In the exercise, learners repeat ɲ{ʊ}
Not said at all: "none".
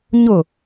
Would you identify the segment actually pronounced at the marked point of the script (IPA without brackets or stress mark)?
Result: ʊ